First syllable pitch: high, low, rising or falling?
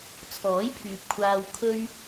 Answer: rising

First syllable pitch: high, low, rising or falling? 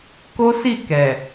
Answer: high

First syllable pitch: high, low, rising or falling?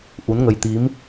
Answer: rising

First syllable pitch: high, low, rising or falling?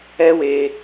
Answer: high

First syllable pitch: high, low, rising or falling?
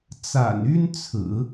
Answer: low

